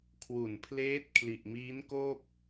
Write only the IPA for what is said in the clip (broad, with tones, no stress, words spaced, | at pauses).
kʰwu˨˩npʰleː˦˥t̚ kʰli˨˩ʔmiː˦˥nkoː˥˩p̚